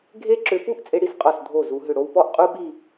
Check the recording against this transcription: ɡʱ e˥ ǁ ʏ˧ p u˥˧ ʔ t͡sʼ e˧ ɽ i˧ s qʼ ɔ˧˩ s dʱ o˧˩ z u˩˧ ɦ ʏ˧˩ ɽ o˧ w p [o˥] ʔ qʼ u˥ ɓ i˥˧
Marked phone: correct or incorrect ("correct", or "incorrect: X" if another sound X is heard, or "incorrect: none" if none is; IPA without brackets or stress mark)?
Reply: incorrect: ɔ˥